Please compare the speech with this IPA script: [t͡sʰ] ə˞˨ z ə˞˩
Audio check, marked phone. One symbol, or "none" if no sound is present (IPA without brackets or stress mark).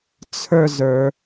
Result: t͡sʰ